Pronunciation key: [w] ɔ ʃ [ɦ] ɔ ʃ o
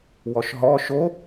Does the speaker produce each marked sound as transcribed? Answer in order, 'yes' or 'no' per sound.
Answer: yes, yes

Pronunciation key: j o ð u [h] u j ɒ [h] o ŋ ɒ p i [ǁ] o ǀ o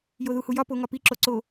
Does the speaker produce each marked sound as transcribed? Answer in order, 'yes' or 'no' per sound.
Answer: yes, no, yes

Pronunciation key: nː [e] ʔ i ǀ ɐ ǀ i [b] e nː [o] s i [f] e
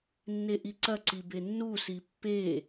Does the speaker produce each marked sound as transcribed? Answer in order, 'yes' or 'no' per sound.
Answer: yes, yes, no, no

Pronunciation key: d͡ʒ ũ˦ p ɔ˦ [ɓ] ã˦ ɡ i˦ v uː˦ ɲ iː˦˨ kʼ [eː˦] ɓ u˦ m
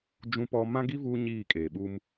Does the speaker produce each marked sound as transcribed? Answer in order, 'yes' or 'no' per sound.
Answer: no, no

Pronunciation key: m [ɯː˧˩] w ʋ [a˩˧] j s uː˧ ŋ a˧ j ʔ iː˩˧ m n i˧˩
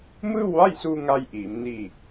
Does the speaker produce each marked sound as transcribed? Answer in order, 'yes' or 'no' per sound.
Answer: no, no

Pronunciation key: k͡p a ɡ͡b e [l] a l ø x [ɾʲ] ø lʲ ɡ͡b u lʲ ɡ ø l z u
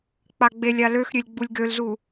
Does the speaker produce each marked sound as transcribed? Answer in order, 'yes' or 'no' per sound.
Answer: no, yes

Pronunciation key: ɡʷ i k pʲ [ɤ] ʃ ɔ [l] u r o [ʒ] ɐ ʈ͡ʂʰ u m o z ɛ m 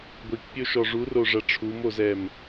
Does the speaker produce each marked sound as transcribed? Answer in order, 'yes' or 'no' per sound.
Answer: no, no, no

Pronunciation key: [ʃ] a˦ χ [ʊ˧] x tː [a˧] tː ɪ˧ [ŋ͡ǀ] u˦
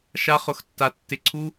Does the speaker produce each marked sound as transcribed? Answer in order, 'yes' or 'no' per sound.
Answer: yes, yes, yes, no

